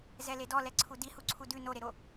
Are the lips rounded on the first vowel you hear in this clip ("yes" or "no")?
no